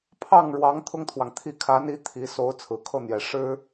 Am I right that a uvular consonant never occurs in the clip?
yes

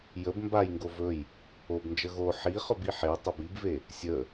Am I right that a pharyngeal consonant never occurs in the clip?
no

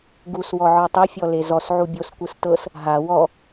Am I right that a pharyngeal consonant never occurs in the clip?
no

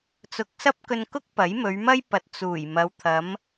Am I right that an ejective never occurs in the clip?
yes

